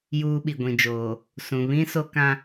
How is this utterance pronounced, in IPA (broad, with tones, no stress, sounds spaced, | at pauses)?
j uː˦ ɓ i˨ ɡʷ ĩ˨ d͡ʒ oː˨ | s ũ˨ β ĩ˦ s o˦ k ã˦